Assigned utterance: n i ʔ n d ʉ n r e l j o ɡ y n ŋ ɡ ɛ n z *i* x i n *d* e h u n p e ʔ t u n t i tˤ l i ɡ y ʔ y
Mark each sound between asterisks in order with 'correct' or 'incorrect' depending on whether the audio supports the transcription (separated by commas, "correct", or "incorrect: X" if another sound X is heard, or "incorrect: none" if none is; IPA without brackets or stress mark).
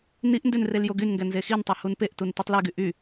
incorrect: e, incorrect: tˤ